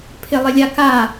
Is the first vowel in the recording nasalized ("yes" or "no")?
no